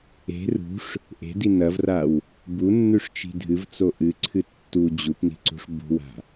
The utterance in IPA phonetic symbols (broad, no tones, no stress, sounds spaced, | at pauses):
e̤ r ṳ ʂ | ʔ e̤ d i n ɐ v r a w | b u nː ʉ ʂ t͡ʃ i̤ dʱ ɨ v t͡s o ʔ ɨ ǀʰ ɨ tː u d͡ʑ u p n i̤ ǀ ṳ ʂ b ṳ w a̤